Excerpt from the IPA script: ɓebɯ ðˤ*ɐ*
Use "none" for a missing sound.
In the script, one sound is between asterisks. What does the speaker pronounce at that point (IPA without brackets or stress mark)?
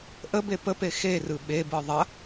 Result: ɐ